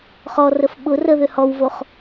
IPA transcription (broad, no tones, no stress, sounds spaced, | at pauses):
χ ɔ r ə f ɓ ʊ r ə ð ø h ɔ w v o χ